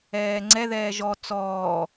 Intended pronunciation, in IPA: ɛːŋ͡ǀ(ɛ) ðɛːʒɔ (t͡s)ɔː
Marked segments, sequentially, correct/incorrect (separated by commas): correct, correct